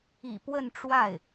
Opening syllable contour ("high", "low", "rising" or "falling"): low